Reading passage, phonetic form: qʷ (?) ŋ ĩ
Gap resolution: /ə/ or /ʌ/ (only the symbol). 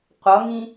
ʌ